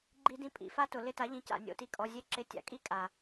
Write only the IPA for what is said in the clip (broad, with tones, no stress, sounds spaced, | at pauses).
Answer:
ɡ͡ǃ i˥ d ĩ˥ pʼ ḭ˨˩˦ f a˥ t ʊ˨˩˦ l ɪ˧˥˧ t a˨˥ ʎ ĩ˨˥ c a̰˨ nʲ o̰˧˥˧ t i˥˨ kʼ ɔ˧˥˧ zʲ e˥ ǁ ɪ˧˥˧ tʲ a̰˨˩˦ kʼ i˥ kʼ a˨